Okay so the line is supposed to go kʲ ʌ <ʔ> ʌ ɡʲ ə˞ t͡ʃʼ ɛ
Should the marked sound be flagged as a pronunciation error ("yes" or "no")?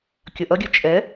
no